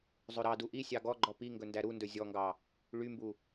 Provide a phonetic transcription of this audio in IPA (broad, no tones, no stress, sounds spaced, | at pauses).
zˤ ɵ ɾ ɑ d u ʔ i sʲ ɑ ɡ ɔ ɡ͡ǃ ɔ p i ŋ ɡ ɵ n d æ ɾ u n d ɵ zʲ ɔ ŋ ɡ ɑ | ɭ y m b u